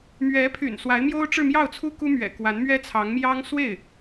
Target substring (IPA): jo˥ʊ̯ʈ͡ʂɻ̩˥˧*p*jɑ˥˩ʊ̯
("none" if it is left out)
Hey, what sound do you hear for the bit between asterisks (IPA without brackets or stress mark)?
m